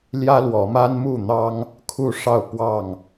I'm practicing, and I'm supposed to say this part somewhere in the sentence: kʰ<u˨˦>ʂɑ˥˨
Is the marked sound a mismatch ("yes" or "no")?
yes